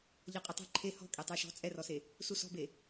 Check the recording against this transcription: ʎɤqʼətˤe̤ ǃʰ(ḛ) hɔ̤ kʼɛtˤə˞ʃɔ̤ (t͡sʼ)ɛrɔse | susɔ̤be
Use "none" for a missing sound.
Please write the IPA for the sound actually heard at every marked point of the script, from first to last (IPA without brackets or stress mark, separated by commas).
e, t͡sʼ